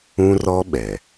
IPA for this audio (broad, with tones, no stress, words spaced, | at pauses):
ũ˦rɔ˦ɓɛ˨